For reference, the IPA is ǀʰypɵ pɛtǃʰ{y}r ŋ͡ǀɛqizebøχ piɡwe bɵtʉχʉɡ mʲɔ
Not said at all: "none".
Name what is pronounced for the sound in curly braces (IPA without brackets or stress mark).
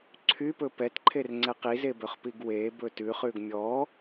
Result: e